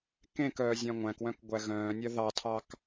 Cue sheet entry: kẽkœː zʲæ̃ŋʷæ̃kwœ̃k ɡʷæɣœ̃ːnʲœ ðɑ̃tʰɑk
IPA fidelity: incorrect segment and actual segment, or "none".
ɑ̃ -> ɑ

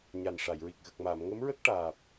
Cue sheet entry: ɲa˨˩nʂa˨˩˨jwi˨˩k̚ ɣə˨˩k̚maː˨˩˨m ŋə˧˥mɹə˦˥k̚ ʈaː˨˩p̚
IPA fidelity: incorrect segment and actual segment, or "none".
w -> ɹ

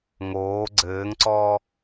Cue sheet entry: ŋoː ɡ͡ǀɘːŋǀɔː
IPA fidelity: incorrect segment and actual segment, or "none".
none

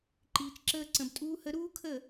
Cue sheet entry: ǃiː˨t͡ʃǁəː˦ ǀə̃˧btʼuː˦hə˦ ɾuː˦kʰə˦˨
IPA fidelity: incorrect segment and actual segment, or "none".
none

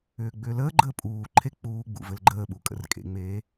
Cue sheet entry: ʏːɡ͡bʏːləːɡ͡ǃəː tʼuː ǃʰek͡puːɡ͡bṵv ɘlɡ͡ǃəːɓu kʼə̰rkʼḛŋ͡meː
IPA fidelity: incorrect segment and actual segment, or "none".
tʼ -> pʼ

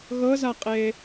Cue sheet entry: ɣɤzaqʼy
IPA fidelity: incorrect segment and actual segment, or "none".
y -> e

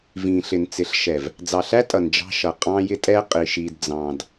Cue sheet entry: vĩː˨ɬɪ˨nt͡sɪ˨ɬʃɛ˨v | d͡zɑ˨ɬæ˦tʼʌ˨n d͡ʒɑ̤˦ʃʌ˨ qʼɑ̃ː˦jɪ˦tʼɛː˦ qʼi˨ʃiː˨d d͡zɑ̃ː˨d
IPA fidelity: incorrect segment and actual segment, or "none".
none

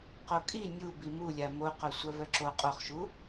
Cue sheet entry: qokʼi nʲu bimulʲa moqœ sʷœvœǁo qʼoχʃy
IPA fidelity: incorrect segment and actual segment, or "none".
y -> u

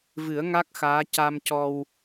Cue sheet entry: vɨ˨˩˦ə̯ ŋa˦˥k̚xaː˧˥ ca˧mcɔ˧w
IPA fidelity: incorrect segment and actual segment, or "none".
none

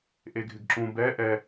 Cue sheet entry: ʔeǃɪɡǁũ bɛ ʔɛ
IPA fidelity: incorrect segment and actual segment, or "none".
ǃ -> ɡʱ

